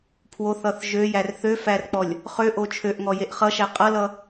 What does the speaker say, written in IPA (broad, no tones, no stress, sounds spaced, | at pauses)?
pʰ w o θ ʌ θ ʒ ø j æ r θ ø f æ r k͡p ɔ lʲ | χ ø ʔ o t͡ʃʰ ø ʔ ŋ ɔ j e ʔ χ ʌ ʃ æ qʼ ʌ l ʌ